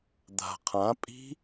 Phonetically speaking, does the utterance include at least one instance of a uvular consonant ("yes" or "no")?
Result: yes